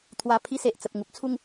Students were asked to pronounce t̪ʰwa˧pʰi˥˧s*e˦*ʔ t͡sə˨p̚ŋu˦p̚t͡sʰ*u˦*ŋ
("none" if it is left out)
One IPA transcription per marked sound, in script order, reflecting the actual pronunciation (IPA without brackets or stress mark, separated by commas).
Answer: e˨, u˥˧